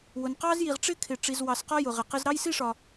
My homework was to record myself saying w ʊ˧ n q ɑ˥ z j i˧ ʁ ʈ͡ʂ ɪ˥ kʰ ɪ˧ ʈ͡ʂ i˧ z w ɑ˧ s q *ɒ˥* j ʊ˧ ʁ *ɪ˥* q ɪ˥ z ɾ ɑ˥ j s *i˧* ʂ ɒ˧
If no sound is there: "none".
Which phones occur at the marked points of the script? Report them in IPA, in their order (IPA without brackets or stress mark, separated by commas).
ɒ˥, ɪ˧, i˥